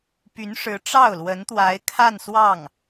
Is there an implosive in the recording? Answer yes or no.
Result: no